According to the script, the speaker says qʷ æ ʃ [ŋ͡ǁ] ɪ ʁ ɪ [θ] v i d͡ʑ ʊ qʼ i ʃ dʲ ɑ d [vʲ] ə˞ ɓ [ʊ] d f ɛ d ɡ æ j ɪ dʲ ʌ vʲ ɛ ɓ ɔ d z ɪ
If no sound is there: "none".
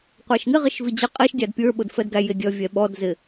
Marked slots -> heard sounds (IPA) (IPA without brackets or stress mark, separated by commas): ŋ, ʃ, pʲ, ʊ